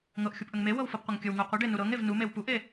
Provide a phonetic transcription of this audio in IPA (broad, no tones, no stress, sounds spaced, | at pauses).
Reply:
ŋ ɤ ʔ xʲ u p ʔ ə ŋ m e w ɤ w f ɤ p qʷ ə ŋ kʲ ə w ŋ u qʷ ə ɖ e n u ɾ ɤ ŋ e v n u m e w p u ʔ e